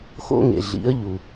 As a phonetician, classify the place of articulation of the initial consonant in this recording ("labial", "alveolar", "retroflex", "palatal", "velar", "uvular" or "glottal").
velar